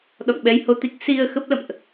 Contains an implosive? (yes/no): yes